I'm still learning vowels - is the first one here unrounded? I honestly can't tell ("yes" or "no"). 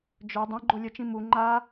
no